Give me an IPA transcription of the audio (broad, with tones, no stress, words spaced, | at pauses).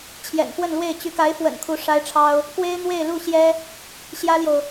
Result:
t͡ɕʰjɛ̰˨˩npwə˥˧nlwe˥˩ɪ̯ t͡ɕy˧˥ka˧˥ɪ̯fwə̰˨˩n kʰu˧˥ʂa˥ɪ̯ʈ͡ʂʰɑ˥ʊ̯ | kwe˥ɪ̯ n̪we˥˧ɪ̯lu˥˩ɕjɛ˥ | ɕjä˥ljo˨ʊ̯